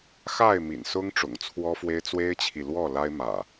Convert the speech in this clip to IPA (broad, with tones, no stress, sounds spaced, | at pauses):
x a˥˨ ɪ̯ m ḭ˨˩ n s ʊ˦ ŋ ʈ͡ʂ ʊ̰˨˩ ŋ t͡sʰ w ɔ˦ f w e˦ ɪ̯ t͡s w e˦ ɪ̯ t͡ɕʰ i˨ l w ɔ˥˨ l a˦ ɪ̯ m ä̰˨˩